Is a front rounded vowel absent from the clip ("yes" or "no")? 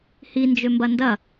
no